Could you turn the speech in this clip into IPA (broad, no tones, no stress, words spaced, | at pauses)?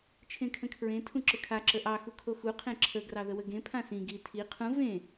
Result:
t͡ʃʰẽkʰə̃kʰɹẽ tʰũǁəkʰa ǁəʔɑ xukʰoxu qʰẽǁʰə ɡrɑðəwəɡẽ pʰãsĩ ɡi tʰi qʰũ vẽ